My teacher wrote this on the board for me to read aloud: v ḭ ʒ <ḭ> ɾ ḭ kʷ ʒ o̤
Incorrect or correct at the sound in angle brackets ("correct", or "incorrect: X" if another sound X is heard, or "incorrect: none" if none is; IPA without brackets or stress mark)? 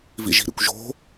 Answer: incorrect: i̤